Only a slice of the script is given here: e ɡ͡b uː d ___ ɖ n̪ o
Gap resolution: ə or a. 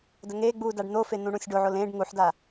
a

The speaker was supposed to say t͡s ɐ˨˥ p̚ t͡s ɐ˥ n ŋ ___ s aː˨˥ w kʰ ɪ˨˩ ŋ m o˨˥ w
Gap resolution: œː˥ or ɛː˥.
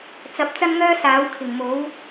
œː˥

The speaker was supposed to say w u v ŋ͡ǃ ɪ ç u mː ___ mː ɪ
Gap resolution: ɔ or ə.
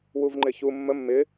ə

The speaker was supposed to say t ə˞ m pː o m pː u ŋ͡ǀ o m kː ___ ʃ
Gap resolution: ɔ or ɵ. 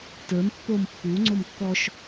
ɔ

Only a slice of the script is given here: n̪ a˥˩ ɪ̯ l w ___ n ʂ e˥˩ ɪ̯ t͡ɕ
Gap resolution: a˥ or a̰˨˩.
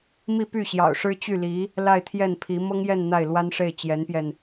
a˥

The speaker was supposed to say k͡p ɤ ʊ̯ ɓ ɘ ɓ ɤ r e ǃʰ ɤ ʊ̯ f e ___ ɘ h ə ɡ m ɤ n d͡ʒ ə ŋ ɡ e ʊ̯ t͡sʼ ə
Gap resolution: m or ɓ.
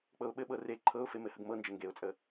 m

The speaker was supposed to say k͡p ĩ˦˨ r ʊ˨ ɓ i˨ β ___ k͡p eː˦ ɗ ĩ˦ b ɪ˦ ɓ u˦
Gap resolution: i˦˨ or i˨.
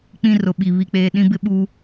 i˦˨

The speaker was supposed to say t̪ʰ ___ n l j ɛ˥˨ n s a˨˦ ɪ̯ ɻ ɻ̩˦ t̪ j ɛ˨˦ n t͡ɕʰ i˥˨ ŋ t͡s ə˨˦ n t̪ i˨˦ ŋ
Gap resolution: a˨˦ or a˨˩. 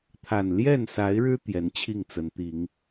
a˨˩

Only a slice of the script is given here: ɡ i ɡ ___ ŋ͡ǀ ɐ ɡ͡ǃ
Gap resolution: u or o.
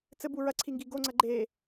o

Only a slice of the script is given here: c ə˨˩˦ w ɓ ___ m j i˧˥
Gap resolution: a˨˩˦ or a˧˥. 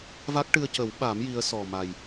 a˨˩˦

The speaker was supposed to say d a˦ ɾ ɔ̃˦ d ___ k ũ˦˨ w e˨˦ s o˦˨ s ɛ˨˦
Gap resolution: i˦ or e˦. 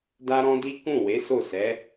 i˦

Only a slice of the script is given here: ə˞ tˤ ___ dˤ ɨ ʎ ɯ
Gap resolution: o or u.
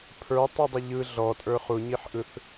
u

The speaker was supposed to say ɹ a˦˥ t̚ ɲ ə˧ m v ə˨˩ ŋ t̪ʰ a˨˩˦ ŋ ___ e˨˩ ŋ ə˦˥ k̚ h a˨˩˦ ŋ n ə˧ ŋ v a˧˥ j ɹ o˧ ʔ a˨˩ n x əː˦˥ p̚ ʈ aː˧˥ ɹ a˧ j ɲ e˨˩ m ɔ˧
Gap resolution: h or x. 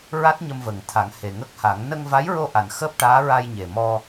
h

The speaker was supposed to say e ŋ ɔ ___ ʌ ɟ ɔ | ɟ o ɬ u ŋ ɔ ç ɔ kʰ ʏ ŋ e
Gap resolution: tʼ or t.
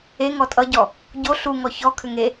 tʼ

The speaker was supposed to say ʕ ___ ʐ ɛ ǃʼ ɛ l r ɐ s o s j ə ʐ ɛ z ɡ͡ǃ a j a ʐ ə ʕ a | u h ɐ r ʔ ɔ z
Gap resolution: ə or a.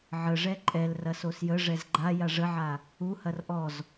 ə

